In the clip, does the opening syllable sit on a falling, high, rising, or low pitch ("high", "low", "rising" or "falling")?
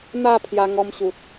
falling